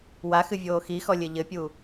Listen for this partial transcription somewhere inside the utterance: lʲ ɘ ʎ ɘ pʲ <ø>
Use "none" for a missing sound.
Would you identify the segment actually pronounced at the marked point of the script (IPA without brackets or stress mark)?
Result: u